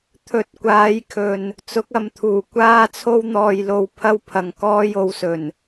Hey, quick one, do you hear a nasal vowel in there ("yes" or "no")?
no